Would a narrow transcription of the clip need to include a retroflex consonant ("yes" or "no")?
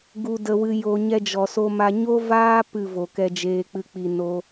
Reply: no